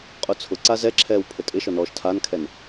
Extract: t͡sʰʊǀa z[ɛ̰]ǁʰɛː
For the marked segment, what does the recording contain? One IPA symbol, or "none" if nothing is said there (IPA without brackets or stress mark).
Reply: ɛ